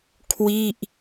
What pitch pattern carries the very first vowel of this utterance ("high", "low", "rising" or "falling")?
falling